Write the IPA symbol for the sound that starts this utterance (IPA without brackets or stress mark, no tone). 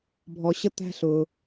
bʱ